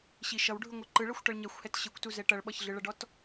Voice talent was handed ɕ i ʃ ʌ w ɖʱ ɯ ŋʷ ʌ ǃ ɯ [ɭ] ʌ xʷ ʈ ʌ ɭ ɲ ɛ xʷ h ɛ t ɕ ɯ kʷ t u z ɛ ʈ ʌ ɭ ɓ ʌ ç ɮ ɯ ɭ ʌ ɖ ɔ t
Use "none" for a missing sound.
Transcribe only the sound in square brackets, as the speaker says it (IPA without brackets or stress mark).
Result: ɭ